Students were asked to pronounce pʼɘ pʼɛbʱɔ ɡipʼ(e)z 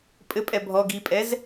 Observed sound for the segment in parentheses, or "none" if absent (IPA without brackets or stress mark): ɛ